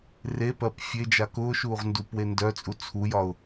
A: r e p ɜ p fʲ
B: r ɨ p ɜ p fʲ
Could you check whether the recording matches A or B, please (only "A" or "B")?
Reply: A